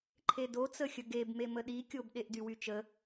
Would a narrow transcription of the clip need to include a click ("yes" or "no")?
yes